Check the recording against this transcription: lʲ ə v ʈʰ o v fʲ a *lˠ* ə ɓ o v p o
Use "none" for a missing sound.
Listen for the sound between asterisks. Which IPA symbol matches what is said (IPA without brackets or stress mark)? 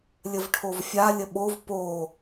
lʲ